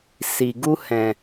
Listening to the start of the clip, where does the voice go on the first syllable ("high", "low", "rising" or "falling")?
low